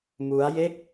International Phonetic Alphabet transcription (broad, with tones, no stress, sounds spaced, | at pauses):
m u˦˥ a̯ j e˥˩ k̚